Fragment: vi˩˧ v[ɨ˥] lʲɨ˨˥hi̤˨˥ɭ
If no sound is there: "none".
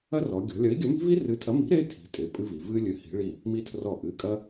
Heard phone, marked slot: ɨ˥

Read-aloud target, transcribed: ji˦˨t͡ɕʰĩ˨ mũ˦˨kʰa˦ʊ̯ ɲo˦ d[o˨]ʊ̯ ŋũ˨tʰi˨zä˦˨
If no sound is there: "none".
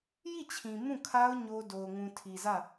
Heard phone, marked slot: o˨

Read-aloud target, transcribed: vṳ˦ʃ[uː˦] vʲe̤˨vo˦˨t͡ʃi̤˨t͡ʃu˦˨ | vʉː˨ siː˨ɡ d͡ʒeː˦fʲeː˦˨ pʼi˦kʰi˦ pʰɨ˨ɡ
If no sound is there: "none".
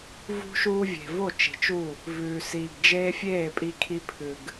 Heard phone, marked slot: uː˦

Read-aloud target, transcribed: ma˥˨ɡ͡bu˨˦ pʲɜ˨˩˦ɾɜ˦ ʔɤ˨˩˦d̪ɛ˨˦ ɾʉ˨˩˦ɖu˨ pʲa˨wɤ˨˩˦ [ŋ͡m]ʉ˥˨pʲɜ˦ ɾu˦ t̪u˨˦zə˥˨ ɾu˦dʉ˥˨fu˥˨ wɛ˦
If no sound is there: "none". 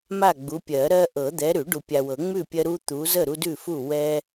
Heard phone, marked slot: ŋ͡m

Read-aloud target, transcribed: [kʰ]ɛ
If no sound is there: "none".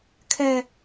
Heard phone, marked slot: kʰ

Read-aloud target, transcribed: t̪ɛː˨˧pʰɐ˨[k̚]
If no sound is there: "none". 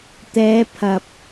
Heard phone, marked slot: p̚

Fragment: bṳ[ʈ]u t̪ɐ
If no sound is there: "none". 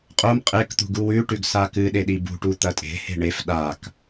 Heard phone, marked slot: ʈ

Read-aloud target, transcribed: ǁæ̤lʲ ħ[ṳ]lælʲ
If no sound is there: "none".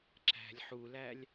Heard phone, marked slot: u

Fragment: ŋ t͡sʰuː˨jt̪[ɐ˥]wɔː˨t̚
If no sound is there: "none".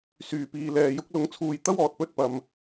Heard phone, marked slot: ɐ˥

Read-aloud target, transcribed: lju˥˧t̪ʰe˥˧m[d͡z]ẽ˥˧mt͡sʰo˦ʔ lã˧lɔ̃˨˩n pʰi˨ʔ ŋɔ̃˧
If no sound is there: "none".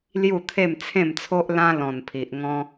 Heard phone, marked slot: t͡sʰ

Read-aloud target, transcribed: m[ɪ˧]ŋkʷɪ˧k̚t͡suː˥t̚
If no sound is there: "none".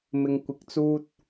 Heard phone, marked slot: ɪ˧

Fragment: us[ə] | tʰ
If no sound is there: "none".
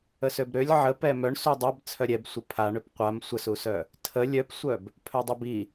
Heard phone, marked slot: œ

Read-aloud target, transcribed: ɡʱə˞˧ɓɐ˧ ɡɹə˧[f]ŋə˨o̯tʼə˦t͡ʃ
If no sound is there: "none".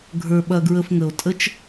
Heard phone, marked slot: f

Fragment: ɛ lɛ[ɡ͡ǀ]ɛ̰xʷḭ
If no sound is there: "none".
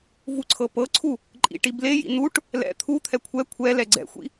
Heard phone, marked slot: ɡ͡ǀ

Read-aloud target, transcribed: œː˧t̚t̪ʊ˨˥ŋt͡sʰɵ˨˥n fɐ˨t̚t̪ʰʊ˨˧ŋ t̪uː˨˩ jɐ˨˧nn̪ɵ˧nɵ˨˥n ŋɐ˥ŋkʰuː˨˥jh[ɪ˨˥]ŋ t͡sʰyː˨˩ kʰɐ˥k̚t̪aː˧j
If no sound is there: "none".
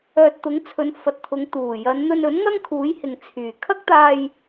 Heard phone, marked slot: ɪ˨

